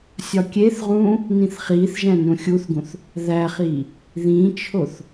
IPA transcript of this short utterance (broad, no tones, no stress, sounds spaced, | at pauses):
sʲ ɒ kʲ e θ ʁ ũː | n ĩ θ χ iː θ ʒ æ̃ n ũ xʲ u θ ɡ ũ θ | ð æ χ iː | ð ĩ t͡ʃʰ o θ